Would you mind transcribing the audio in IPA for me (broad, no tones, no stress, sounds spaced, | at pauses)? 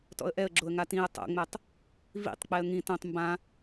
t ɔ̰ ə̯ ʔ ɛ ə̯ ɡ͡ǁ o ə̯ ŋ a t ĩ ə̯ tˤ o̰ ŋ͡m ɛ tˤ | v ḭ tˤ k͡p ɛ ə̯ ŋ ĩ t õ tˤ m b ã